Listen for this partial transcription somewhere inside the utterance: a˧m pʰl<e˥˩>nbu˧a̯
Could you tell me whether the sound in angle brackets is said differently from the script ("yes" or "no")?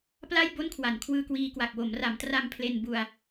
yes